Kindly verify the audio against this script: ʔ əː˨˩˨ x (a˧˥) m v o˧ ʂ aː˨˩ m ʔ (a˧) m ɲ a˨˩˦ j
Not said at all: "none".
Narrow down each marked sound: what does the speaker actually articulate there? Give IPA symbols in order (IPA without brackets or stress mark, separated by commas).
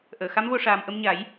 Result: a˧˥, ə˧